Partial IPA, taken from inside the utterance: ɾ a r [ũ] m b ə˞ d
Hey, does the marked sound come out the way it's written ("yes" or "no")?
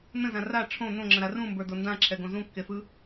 yes